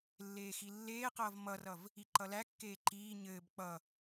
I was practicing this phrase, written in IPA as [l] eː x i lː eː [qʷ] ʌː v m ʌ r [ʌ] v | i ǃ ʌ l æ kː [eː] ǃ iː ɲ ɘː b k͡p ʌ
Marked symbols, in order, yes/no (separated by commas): no, no, yes, yes